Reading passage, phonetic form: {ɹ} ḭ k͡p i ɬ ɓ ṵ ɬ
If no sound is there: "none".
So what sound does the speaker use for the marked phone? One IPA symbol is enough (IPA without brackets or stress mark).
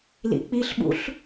l